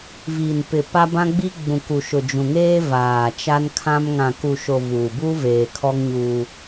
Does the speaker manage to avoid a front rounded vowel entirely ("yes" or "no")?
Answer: yes